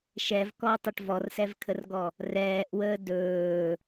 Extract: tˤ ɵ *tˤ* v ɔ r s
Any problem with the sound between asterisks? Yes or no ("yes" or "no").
yes